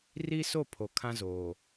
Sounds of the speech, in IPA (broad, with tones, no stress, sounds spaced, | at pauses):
r i˦ s o˦˨ pʰ o˨˦ kʰ ã˦ z oː˨